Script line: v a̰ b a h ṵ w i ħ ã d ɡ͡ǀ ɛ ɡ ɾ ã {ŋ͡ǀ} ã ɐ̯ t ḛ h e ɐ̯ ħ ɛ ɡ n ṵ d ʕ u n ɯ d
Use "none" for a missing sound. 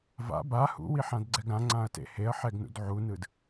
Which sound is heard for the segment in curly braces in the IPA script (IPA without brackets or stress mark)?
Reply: ŋ͡ǀ